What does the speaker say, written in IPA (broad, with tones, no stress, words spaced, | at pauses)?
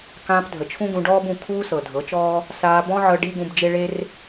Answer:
kãː˧pdʱə˨t͡ʃʰũ˦ɡũ˧ ɖɔː˦bũ˨ kʰuː˦sɤ˨dʱɤ˨˦t͡ʃɔː˦ | saː˧bɔ̃˦ʕɤ˧ ɖi˦ɡũ˧bd͡ʒe˦ɭe˦r